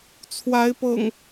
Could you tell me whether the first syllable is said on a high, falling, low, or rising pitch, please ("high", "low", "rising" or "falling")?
rising